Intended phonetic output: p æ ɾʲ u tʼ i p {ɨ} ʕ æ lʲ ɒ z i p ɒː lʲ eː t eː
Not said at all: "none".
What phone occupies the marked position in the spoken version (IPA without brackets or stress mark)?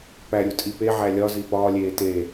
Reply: e